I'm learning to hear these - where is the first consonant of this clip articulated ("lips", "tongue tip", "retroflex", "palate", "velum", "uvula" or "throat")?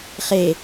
uvula